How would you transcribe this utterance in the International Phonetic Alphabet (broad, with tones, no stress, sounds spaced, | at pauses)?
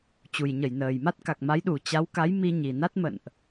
t͡ɕ u˨˩ j ɲ ə˧˩ j n əː˨˩ j m a˦˥ t̚ k a˨˩ k̚ m a˨˦ j ɗ u˨˩ t͡ɕ a˨˦ w k a˨˦ j m i˧ ɲ i˨˩ n a˦˥ t̚ m ə̰˧˨ n ʔ